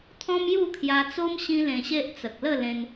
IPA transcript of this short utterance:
t̪ʰɔ̃˦mju˥˧kʰja˧t͡so˦m ɕĩ˦lẽ˧ɕe˦ʔ t͡sə˨k̚lə˥˧lẽ˧n

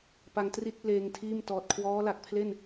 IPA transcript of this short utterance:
pa˧ŋtri˥˩t̚leː˧ŋtʰiː˥˩m tɔː˨˩t̚kʰwɔː˦˥la˨˩k̚pʰle˥˩n

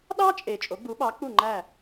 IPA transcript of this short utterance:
ɗɑ˥t͡ʃʼe˩ t͡ʃʼo˩˥ɡ͡bu˩˥ɓɑ˩˥k͡pu˥˩ ŋ͡ǃæ˥˩

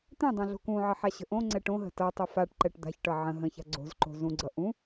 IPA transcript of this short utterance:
t̪ɛ̃dˤã ɮo̤kũʕʌ ħaɕə̤ʔõŋ͡ǀɛ ʈõ ɦə̤tʌtˤə faʈ ǃɛʈd̪a̤çʈʌ ʕə̃ ɦə̃ça̤ ɡ͡ǀo̤zǃo̤ zũɡ͡ǀʌ ʔũ

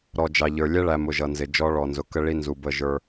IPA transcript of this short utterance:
ɾɔ˨d͡ʒɑ˨ʎə˞˨lʲɛ˦ ɭæ˨mʊ˨ ʒʌ˨nzɪ˨d͡ʒɔ˦ ɭɔ˨nzʊ˨ kə˦ɭi˦ nzu˨ bə˦˨ʒə˞˦

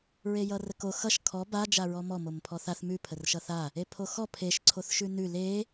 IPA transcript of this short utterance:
ɹejʌrəko xʌʃ kʰɔ ba d͡ʒaɹɔmɔ mompʰɔθaθ mʉ pʰərʃʌθa | epʰoxɔ pʰeʃ ǀʰoθʃʉnʉ le

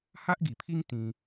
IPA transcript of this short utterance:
ha˦ʔɡi˨˩pʰi˦ŋ t̪ĩ˧

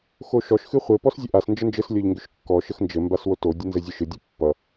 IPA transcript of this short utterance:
xoʃɔʃ xɨχʷɘ pɔszʲəʔas nd͡ʒənd͡ʒɘs lʲɔʎŋɡʏʃkːɔ ʃəxnd͡ʒɘ mbaswoto dʲɘnzɘzʲɨʃɨ dʲɨpːʌ

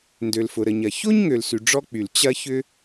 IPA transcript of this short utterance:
ndø˩lfʊ˩ɾə˩ɲɐ˩ ço˥ɲŋø˩lsy˩ ɖ͡ʐɔ˥k͡py˩l t͡ɕɐ˥çʏ˥

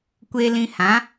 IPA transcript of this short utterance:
kʷe˧lĩ˧hã˨˦

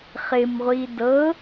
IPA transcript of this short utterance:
χɪmʁʷi dɤ

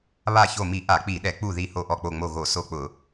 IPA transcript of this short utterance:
βa˧˩ço˧˩mi˧˩˧ ʔa˧˩˧k͡pi˧˩˧ɗɛ˧˩˧ k͡pu˧˩ ði˧˩ ho˧˩ʔɔ˧˩k͡po˧˩ŋ͡mo˧˩ ɣo˧˩˧so˧˩k͡pʊ˧˩˧

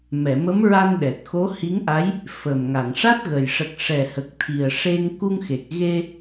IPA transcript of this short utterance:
mɛ˨˩˨mə˧˥mɹa˧n ɗɛ˨˩t̚xo˧˥hi˧˥ŋʔa˧˥j | fə˨˩m ŋa˨˩˨ŋʂa˦˥t̚ɣə˨˩j ʂə˨˩k̚ʂɛ˨˩ hə˨˩k̚t̪ʰi˨˩ə̯ʂe˧ŋ ku˧ŋ xe˨˩k̚ ɣe˧

